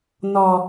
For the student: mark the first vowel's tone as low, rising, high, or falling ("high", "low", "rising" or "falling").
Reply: low